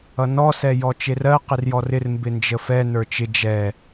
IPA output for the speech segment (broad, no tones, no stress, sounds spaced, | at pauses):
ʌ n ɔ s ɛ j ɔ t͡ʃ e r ɜ q ɪ r j ɔ r ɪ r m b ɪ n d͡ʒ ə f ɛ n ə˞ t͡ʃ ɪ d͡ʒ ɛ